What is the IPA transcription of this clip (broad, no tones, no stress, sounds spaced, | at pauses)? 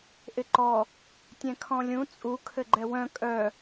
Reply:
ʔ ɪ ǃ ɔ | tʲ ɛ̃ kʰ ɔ̃ lʲ ũ t͡sʼ u kʰ ɘ ɡ͡ǃ ɛ w œ̃ kʼ œ